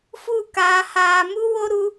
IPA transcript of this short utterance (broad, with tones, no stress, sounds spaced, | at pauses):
f u˦˨ k aː˨ h aː˨ m u˦ w o˦ ɾ u˦